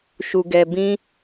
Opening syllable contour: low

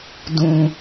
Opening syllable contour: low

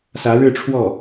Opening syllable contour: rising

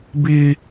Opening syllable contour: high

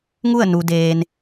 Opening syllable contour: falling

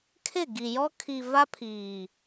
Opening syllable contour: falling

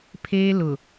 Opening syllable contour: high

